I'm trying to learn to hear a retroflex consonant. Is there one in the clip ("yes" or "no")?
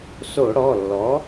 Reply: yes